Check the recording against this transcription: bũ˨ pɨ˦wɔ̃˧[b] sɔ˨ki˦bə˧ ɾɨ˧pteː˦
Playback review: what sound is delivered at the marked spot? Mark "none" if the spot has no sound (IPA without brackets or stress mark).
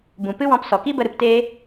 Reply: p